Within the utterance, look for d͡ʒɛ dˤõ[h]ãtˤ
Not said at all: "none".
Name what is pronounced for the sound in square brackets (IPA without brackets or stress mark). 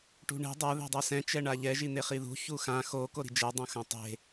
x